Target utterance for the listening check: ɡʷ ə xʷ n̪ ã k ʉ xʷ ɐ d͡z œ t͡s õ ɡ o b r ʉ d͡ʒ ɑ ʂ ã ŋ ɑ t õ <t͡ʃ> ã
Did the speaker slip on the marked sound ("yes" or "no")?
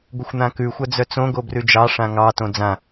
yes